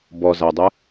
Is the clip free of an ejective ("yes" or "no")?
yes